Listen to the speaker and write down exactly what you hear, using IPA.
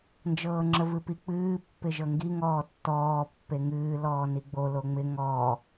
nd͡ʒɤːŋ͡ǁəvɨpi k͡pɨː pːɪʒɤŋɡi ŋɔːtːɔː pːeŋɨː lɔːniɡ͡bo loŋ͡mɪ ŋɔː

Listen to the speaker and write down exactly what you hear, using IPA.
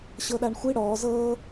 ɕɤɗaɳxʷi ɽɔː zɤː

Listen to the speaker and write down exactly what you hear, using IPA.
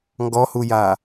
ŋɡɔhuja

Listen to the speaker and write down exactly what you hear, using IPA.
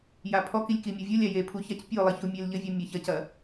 japʰɔkilʲ kimʲɔvʲolʲa je pʰuçac pʲolˠi çumʲelʎɘvʲu mʲaçɐcɐ

